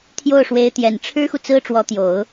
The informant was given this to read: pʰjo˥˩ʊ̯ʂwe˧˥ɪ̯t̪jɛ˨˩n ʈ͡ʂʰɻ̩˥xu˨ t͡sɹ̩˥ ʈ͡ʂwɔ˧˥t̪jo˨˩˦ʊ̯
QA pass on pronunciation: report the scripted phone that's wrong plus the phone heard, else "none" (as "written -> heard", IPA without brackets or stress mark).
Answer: pʰ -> t̪ʰ